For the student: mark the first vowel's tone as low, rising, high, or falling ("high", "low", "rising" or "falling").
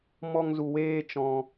high